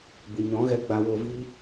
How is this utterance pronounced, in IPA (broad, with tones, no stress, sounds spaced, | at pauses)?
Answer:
b ɨ˨ ɲ ɔ̃˨˦ ɣ ɛ˧ ɡ͡b a˧ w o˧ v iː˦